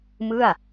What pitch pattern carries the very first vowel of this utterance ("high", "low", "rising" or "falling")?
falling